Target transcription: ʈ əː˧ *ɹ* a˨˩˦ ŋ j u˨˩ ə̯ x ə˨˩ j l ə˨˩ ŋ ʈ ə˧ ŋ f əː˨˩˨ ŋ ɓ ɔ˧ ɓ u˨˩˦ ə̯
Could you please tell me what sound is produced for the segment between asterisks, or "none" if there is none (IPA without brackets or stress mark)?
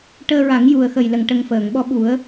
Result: ɹ